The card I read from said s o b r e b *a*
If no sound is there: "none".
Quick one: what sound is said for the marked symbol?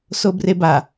a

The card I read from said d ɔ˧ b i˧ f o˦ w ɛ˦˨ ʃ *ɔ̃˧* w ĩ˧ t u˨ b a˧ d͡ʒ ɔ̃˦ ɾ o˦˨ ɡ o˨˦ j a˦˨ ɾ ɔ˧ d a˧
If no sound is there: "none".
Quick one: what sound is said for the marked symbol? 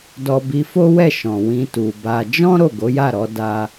ɔ̃˨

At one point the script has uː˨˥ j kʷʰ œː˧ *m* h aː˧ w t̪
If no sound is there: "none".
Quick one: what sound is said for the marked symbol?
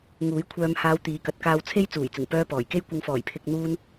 m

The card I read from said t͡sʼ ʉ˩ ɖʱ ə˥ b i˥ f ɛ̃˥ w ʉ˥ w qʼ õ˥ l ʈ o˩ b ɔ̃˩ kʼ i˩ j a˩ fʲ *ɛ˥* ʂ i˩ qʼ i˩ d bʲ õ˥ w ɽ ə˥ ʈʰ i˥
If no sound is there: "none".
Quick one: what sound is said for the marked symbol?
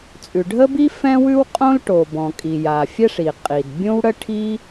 ɛ˥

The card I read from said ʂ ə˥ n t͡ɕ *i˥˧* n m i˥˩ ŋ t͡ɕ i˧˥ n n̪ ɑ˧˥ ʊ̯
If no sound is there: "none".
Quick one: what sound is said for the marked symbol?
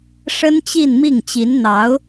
i˥˧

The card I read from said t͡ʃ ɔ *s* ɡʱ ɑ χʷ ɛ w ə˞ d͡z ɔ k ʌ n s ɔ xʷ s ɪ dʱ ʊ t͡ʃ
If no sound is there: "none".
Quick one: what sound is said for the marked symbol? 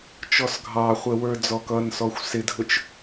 s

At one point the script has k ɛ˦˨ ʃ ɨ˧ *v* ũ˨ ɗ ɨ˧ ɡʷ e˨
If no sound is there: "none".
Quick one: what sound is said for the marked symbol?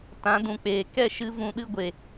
v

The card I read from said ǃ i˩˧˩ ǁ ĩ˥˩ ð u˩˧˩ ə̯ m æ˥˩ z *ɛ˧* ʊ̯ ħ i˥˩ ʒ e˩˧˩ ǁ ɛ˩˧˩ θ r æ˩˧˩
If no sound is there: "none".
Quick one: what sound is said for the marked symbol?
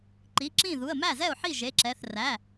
ɛ˥˩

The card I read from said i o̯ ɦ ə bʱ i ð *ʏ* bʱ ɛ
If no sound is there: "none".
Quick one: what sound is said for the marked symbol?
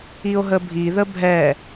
ə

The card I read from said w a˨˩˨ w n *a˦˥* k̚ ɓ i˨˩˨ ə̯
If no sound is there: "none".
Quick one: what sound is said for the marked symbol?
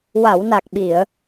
a˨˩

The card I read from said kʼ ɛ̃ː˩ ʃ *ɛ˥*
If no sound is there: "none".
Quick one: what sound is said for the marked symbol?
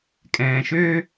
ø˥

